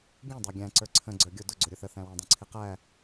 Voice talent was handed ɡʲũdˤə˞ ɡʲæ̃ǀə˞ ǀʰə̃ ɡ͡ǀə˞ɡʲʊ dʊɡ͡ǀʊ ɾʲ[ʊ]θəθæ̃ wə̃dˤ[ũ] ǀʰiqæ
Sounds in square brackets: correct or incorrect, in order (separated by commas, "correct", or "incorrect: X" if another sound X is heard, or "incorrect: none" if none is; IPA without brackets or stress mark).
correct, correct